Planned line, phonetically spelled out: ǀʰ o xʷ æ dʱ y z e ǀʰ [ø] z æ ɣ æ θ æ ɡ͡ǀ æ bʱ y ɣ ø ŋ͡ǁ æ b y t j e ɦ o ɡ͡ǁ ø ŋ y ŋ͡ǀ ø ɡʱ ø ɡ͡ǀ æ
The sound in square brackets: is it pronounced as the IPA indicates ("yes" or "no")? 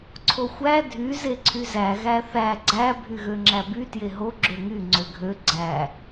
no